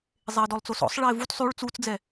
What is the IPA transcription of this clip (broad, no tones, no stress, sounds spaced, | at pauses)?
zˤ e ə̯ d ɔ lˠ t͡s o s ɔ̰ sˤ ɭ ɛ ɪ̯ v u t sˤ y ɭ t͡s u t͡s d͡z ɛ